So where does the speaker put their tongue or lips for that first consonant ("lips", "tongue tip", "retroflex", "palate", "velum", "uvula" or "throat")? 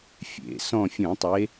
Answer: lips